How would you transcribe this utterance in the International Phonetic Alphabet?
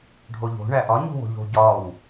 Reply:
ɖʱ o ʎ o̤ ɳ æ ʔ ɒ ɲ ṳ w o̤ ʎ o̤ ɟ ɒ w

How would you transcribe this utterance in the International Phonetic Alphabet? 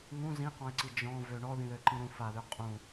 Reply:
ŋ ũ z ĩ q ɔ̃ ɪ̯ ǀ i d͡ʒ ɔ̃ v ø ɳ ɔ ð ĩ ð ø ǃ ĩ ɾ ũ f a ð ø qʼ ũ

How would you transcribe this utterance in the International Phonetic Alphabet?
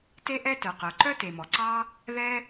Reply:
t e˥ ʔ ɛ˥ t œ˩ q œ˩ ǃ œ˥ t e˩ m ɔ˩ ǀ ɑ˥ | ð ɛ˥

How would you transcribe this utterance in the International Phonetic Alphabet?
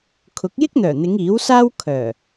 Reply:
kʰ ʊ˨˥ k̚ j ɪ˥ k̚ n̪ œː˨˩ n̪ ɪ˨˧ ŋ iː˨˥ w s aː˥ w kʰ œː˨˩

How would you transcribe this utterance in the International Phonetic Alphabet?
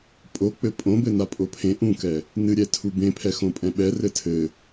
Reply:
pʼ o k͡p ɘ pʼ õ b ɘ n a pʼ o pʰ ẽ ʔ ũ k ɛ | n ɨ ɾʲ ɛ tʰ u b ẽ pʰ ɛ x õ pʼ ɛ̃ ɓ ɛ r ɘ tʰ ɘ

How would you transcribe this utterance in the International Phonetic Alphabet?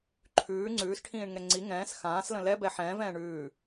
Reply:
ǃʰ ʉː ŋ͡ǀ ʉː s ʈʰ ĩː ɳ ŋ ɛ ŋ͡ǀ i ŋ ɛ̃ː s x ãː s l ə̃ l ɛ b ɛ ħ ɛ̃ː v ɛ̃ː ɳ ʉː

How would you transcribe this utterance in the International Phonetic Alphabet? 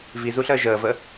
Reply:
v i z u ɬ əː ʒ əː v ə

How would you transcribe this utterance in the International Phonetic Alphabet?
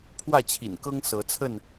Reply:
pʰ w ä˥˨ t͡ɕʰ ḭ˨˩ n k ɤ˦ ŋ s ɤ˨˦ t͡sʰ ə˥˨ n

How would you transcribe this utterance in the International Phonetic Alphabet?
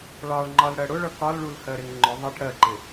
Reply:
ɭ ɑ ɭ ŋ͡ǃ ɒ l ɽ ɜ ɽ ʊ ɭ ʌ k ɒ l ɭ u l h ɜ ɾ ɪ ŋ ŋ͡ǃ ʊ ðˤ ʌ ʈ ɽ ɜ ǃ ɪ

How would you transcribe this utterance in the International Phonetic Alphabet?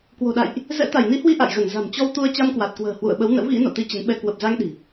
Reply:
k w o̤˨˩ ɗ a̰˧˨ j ʔ | z ɛ̰˧˥ t̪ a˧˩ j n i˨˦ h w i˧ ʔ a̰˧˨ j ɣ ə˧˩ n z a̤˨˩ m t͡ɕ ɔ˧ w t̪ u˧ ə̯ t͡ɕ a˧ m k w a˨˩ t̚ k w ə̤ː˨˩ h w ṵ˧˨ ə̯ ɓ ə˨˦ w n ə̰˧˥ w ɣ ḭ˧˥ n o̰˧˨ t̪ i˧ t͡ɕ ə˨˦ n ɓ ɛ˧ k w ə˨˩ p̚ z a˧ ŋ ɗ i̤˨˩

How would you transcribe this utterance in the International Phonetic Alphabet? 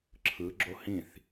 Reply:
ǁʰ ɯ ɡ͡ǁ o h ĩ θ

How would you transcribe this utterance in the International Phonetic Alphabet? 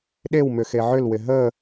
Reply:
ɗ e w m ʏ x e ʕ ʏ l w ɪ ɦ ə

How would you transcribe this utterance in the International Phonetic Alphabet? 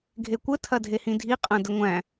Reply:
ɡʱ e kʷ ə tʰ ɐ dʱ e h ĩ dʱ i qʼ ɐ̃ d ə ŋʷ æ̃

